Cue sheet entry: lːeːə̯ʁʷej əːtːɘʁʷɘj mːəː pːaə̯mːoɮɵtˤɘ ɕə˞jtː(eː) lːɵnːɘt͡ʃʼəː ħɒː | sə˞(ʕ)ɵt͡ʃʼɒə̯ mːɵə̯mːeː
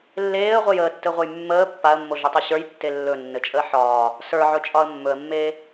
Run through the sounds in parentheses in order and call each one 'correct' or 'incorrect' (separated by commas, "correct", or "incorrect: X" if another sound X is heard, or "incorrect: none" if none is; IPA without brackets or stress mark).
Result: incorrect: e, correct